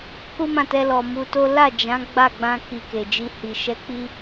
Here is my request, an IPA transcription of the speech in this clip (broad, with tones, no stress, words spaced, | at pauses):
ku˦mã˦˨tɛ˧lɔ˨ mu˧to˦ la˦˨d͡ʒã˨˦ ɡ͡ba˦˨ɡ͡bã˧ ki˧ke˨d͡ʒi˧ hi˨ ʃɛ˨˦k͡pi˧